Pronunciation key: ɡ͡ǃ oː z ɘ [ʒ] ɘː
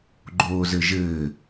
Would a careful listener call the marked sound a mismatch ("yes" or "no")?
no